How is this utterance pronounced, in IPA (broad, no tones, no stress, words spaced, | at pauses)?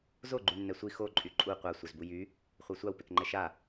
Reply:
zo ɡ͡ǃynːɛsʷi xo ǃʼyǃʼu qʷa sʷœzbujy | χʷœsʷaw pekŋ͡ǃɛʃa